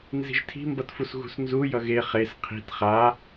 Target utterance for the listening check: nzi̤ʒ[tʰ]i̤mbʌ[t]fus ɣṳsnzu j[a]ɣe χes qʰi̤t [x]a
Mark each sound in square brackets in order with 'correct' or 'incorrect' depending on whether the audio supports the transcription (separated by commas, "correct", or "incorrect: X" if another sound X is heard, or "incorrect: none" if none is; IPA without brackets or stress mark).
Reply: correct, correct, incorrect: ʌ, incorrect: χ